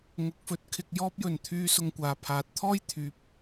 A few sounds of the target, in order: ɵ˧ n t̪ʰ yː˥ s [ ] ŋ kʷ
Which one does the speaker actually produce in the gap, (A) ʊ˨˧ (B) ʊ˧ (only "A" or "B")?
B